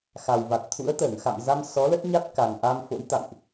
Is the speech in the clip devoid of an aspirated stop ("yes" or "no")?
no